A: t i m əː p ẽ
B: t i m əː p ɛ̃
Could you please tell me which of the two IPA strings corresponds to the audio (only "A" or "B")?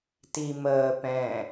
B